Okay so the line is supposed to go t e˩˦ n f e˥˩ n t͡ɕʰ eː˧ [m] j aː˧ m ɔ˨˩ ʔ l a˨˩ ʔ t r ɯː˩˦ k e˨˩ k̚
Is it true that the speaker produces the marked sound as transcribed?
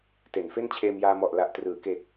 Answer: yes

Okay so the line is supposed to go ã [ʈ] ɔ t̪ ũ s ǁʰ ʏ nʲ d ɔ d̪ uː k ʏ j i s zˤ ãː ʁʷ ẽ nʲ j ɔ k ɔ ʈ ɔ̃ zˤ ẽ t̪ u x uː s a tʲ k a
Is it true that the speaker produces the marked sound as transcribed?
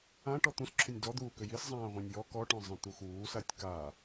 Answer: yes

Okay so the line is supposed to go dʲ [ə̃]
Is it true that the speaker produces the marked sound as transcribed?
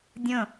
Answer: yes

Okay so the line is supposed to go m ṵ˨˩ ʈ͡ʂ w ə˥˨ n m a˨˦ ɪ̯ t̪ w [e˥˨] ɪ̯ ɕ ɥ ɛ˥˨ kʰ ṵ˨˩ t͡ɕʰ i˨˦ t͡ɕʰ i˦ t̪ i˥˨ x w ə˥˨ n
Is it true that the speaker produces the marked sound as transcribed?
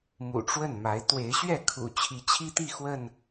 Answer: no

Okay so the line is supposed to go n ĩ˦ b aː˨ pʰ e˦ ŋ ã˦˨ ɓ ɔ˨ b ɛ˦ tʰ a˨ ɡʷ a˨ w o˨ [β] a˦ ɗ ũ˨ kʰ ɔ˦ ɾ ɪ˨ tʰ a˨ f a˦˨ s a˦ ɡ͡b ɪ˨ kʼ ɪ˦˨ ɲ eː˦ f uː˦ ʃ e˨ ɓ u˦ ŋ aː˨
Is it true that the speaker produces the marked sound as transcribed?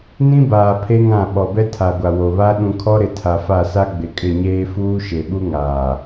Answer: yes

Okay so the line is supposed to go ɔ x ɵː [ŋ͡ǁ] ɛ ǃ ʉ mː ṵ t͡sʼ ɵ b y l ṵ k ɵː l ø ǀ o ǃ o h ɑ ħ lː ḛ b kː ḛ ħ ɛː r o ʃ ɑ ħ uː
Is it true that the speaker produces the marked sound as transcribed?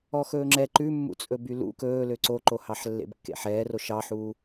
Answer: yes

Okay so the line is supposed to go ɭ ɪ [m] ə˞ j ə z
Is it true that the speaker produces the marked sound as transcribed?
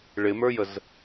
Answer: yes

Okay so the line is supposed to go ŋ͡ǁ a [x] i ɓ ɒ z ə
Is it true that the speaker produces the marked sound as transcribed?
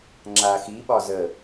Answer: yes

